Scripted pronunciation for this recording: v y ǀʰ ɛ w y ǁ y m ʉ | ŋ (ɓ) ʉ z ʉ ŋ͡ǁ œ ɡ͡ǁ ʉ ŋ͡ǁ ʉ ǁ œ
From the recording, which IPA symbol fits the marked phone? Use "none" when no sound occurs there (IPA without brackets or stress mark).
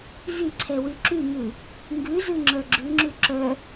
ɡ